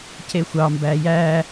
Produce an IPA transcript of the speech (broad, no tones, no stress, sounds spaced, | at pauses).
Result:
c e xʷ ɑ m b æ j æ